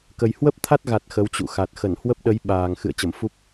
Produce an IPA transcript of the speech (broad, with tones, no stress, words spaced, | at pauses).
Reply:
kə˨˩jhwə˦˥p̚t̪ʰa˦˥t̚ɣa˨˩t̚ xə˨˦wt͡ɕṵ˧˨xa˨˩t̚ xə˧˩nhwə˦˥p̚ɗə˨˦j ɓaː˨˩ŋ xɨ̰˧˨ə̯t͡ɕə˧˩mfu˦˥p̚